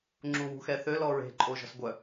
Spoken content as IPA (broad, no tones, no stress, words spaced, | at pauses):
ŋ͡ǁuwṳxɛθø lɔɹe̤ ǃʼoʒɔ̤sɡʷœ